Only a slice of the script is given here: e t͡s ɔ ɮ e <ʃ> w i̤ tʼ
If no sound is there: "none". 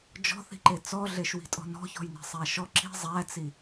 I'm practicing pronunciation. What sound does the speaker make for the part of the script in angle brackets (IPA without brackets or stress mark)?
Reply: ʃ